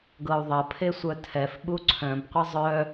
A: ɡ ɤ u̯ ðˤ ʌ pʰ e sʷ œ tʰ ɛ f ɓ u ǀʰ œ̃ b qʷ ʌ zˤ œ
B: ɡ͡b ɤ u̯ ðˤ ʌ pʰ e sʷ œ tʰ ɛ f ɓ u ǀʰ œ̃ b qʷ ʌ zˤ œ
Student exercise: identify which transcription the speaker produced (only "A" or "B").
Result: A